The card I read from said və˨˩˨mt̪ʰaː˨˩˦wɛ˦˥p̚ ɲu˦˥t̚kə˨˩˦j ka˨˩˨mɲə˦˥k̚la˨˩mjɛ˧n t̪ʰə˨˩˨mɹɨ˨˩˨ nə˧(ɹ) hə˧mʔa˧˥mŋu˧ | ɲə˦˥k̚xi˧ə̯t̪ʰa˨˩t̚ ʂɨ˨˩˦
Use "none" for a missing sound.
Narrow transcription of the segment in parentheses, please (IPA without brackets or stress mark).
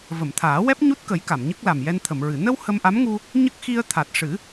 w